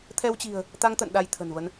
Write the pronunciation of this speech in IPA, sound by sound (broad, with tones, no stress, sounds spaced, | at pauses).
t̪ʰ ɛ˧ w t͡ɕ i̤˨˩ ə̯ | t̪ a˧ ŋ t̪ ə̰˧˨ n ɗ a˧ j t̪ʰ ə̤˨˩ n v ə˧ n